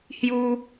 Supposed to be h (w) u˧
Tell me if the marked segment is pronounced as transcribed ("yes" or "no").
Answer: no